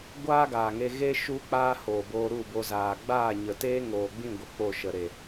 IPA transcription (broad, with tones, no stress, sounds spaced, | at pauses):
ɡʷ aː˦ ɡ aː˨ ŋ e˧ ɣ e˦ ʃ u˦ k͡p aː˦ h oː˨ b oː˧ ɾ u˦˨ b o˧ z aː˨ ɡ͡b aː˦˨ ɲ ə˨ t eː˦ ŋ oː˨ ɡ͡b ĩ˦˨ ɡʷ ə˨ k͡p o˦˨ ʃ ə˨ ɾ e˨